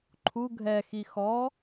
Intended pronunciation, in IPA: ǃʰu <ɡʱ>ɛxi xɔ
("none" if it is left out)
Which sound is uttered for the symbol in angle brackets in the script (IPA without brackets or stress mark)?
ɡʱ